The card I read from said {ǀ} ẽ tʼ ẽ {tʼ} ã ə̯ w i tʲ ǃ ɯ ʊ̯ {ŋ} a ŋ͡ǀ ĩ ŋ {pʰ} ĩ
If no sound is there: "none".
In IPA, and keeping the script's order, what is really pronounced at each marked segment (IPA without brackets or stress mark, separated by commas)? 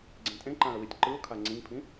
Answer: ɡ͡ǀ, ǃ, kʰ, pʰ